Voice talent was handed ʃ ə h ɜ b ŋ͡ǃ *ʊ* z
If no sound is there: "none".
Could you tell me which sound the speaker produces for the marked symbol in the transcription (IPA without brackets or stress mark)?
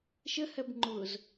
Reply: ʊ